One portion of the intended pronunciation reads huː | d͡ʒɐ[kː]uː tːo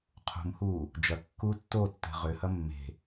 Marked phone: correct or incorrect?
correct